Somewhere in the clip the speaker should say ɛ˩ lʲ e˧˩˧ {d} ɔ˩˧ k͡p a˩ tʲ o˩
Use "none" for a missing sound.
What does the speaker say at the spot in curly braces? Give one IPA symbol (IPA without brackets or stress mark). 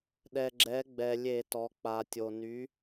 t